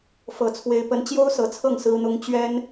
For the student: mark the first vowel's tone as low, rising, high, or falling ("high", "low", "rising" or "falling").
low